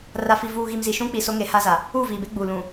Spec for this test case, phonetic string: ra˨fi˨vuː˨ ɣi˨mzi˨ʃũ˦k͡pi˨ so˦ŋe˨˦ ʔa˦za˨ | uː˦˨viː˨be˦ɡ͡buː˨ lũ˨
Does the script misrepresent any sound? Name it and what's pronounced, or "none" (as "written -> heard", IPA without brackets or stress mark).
ʔ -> h